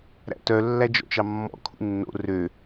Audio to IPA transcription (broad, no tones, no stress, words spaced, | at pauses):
ɾæ̰tœ lːæd͡ʒɔ̰t͡ʃɑmːɔ̰ kʰṵnːo̰ rø